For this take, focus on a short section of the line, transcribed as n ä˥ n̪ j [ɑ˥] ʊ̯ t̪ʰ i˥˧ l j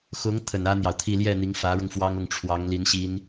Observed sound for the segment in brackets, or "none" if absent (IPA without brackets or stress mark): ɑ˨